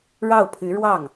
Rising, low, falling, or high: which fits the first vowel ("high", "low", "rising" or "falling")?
falling